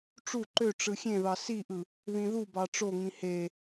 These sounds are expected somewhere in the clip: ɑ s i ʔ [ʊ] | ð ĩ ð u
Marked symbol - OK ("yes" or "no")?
no